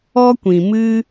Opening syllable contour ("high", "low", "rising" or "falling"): high